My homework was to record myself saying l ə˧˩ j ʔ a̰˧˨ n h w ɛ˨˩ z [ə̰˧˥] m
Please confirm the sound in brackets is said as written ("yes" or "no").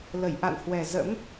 yes